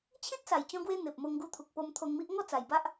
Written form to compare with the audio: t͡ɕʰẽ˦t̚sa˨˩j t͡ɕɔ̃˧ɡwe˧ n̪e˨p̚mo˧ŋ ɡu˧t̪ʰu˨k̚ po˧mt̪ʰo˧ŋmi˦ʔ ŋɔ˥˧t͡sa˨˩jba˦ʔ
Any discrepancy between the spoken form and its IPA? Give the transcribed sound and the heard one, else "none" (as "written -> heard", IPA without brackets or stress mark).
none